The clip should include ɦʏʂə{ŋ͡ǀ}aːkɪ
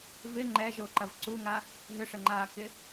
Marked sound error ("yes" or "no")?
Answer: yes